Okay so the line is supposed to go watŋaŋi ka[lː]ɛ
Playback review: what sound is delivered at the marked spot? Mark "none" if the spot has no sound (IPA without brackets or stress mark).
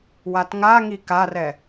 r